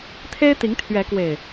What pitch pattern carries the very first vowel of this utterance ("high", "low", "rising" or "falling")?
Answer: high